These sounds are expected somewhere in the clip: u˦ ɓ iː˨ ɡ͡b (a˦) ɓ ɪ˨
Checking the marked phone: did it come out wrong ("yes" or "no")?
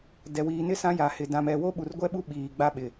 no